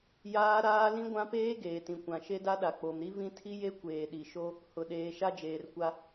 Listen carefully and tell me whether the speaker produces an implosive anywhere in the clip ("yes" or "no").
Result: yes